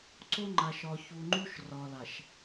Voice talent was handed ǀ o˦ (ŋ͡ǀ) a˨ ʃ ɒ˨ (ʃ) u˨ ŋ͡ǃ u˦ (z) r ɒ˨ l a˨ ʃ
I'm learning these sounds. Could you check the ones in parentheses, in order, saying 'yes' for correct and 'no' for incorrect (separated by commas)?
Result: no, no, no